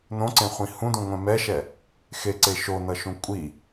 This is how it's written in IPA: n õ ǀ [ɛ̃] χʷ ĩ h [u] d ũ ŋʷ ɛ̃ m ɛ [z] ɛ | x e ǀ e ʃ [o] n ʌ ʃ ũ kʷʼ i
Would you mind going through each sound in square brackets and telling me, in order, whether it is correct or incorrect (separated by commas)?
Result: incorrect, incorrect, incorrect, correct